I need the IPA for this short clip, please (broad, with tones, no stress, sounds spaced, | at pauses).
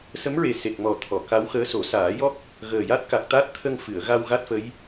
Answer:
s ə˧˥ m ɹ e˨˩ s e˨˩ k̚ m ɔ˨˩ t̪ʰ ɔ˨˩˨ k a˧˥ w x əː˧˥ s o˨˩˦ s aː˨˩˦ j ɔ˦˥ k̚ | ɣ əː˨˩ j a˦˥ t̚ k a˨˩ k̚ t̪ a˦˥ t̚ t̪ʰ ə˧ ŋ f ɨ˨˩˨ ə̯ ɣ a˧ w ɣ a˦˥ t̚ f ə˧˥ j